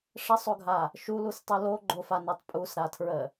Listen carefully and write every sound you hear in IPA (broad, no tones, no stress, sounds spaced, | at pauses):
ʂ ə sˤ o ɡʱ a | ʃ u l u s tˤ u l o ɡ͡ǃ o f a n o tˤ pʼ u s ɾ a tʰ ɹ ə